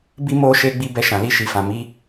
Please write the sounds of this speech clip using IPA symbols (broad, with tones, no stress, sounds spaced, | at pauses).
b i˦ m o˦ ʃ e˦ ɡ͡b i˦ b ɛ˦˨ ʃ ã˨ l i˧ ʃ i˨ f ã˨ m i˨˦